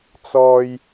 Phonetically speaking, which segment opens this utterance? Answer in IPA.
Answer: t͡s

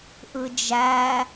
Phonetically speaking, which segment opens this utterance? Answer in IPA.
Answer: ʔ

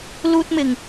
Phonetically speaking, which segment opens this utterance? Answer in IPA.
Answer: l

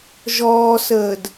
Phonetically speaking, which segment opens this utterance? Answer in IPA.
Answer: ʒ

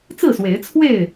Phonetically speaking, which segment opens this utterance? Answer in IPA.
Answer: t͡s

